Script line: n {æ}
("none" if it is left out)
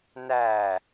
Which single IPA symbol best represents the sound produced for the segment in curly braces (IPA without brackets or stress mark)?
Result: æ